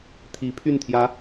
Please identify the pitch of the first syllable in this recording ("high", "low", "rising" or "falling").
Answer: rising